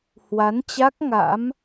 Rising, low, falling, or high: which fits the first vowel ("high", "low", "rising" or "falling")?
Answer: rising